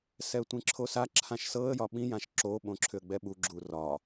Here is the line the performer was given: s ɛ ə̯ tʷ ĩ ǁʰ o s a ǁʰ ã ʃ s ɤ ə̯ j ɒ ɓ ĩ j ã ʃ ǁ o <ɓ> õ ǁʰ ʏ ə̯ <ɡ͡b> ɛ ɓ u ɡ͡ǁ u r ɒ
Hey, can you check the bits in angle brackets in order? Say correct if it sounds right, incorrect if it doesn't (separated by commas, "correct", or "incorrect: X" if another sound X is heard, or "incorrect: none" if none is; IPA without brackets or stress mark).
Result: correct, correct